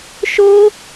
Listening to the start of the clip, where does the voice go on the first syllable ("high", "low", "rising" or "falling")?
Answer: high